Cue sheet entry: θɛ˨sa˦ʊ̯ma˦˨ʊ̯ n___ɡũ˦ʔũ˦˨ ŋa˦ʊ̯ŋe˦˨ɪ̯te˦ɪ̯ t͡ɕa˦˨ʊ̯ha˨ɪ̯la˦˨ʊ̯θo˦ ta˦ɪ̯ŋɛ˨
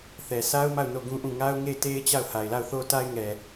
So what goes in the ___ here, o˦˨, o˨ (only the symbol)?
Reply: o˦˨